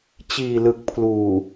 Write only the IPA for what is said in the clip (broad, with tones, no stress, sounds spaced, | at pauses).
t͡ɕ iː˨˩ l ɯ˨˩ k̚ pʰ l uː˨˩